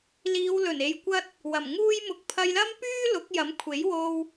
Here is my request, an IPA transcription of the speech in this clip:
l iː˨˧ w l ɵ˨˩ n e˨˧ j kʷ ɐ˥ t̚ | w ɐ˨˩ m ŋ uː˧ j m ʊ˨ k̚ pʰ ɐ˧ j l ɐ˥ m p yː˥ l ʊ˨˥ k̚ j ɐ˨˥ m kʷʰ e˨˥ j w o˥ w

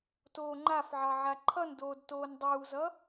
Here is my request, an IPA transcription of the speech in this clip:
t oː ŋ͡ǃ a f ʕ ɑ ʕ a ǃʰ ʌ n d oː d t oː n dˤ uː z ʌ

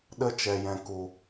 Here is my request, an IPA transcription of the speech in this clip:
ɗ ə˦ t͡ʃ ɛ˨ j ɛ̃˨ k u˨

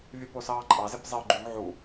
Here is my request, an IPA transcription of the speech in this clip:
vʲ u p o s ɑː ǃʼ ɑ z e p zˤ e ʊ̯ ɡ͡ǃ y ŋ ʕ u

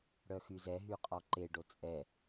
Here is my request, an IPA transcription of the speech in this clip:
ɽ œ x y z ɛ ɦ y qʼ ɔ ǃ e ɖ o t͡sʼ ɛ

